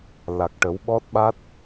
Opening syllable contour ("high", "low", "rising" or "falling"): low